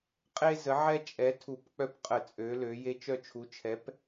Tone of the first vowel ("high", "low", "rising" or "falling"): high